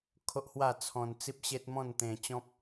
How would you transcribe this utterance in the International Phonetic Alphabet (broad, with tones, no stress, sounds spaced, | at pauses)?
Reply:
kʰ o˦ ʔ h w a˥˧ t͡sʰ ɔ̃˧ n t͡s i˦ p̚ ɕ e˦ t̚ m ɔ̃˥˧ n t̪ ẽ˧ t͡ɕ ɔ̃˦ p̚